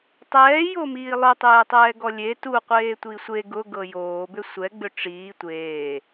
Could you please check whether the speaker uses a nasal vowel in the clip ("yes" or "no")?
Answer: no